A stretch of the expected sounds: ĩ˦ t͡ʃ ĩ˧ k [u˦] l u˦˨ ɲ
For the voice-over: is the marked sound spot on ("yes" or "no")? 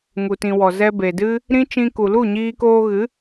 no